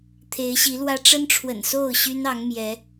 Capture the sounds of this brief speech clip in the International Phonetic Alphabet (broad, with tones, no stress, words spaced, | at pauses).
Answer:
t̪ʰe˨˦ɪ̯ɕi˨˦lwä˦ ʈ͡ʂə˦nʈ͡ʂʰwə̰˨˩nso˥˨ʊ̯ ɕy˦nɑ˨˦ŋmjɛ˨˦